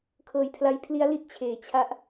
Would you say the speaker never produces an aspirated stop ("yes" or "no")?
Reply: no